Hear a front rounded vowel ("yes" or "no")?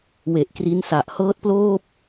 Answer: no